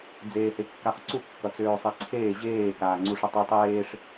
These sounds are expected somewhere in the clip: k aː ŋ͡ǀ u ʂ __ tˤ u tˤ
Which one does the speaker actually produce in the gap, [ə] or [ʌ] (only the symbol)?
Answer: ə